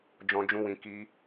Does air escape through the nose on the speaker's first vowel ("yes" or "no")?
yes